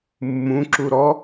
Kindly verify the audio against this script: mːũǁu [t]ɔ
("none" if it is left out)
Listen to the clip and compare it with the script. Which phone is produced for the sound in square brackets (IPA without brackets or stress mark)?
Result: ɾ